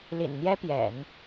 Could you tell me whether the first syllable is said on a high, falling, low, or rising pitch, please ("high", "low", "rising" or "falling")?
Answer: low